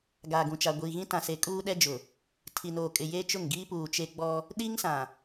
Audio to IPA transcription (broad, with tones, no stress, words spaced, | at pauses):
ɡaː˨ɡũ˨t͡ʃa˨ ɡʷiː˨ɣĩ˦tã˨se˨ kʼuː˦ɗɛ˦d͡ʒʊ˨ | tʰi˨noː˨kʼɪ˨ je˦t͡ʃʊ˦˨ŋɡiː˦ puː˨t͡ʃe˦ ɡ͡bɔ˦ | ɗi˦ŋsã˨